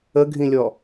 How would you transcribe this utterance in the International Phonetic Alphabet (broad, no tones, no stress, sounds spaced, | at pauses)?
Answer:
ə ɡʱ ĩ lʲ ɔ